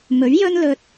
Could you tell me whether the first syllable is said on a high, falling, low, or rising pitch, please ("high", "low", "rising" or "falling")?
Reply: rising